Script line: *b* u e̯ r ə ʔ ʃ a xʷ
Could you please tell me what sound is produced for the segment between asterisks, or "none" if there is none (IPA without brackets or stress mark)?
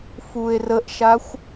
f